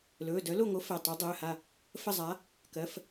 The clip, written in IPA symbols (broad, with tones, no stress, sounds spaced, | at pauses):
l ɵː˩˧˩ d œ˨˥ l o˥˨ ŋ o˨˥ f ɛ˩˧˩ tˤ o˨˥ dˤ ɵː˩˧˩ h a˥˨ | f ə˥˨ zˤ a˨˥ | k ɜ˩˧˩ f